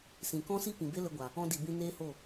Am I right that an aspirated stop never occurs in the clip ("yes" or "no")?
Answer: yes